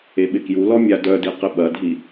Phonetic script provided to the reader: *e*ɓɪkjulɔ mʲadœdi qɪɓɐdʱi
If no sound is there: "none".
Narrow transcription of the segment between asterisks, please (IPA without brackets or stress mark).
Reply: e